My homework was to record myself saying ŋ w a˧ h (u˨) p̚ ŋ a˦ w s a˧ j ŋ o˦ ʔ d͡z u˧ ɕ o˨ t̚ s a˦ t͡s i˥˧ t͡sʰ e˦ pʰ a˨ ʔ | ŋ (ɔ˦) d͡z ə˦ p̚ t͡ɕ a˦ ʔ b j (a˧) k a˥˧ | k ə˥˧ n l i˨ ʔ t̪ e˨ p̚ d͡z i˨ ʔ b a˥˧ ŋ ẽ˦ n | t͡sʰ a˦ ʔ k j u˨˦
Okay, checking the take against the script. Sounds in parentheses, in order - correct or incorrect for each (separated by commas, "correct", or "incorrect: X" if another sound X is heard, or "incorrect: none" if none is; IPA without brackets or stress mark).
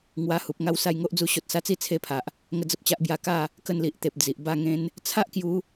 correct, incorrect: ə˦, incorrect: a˥˧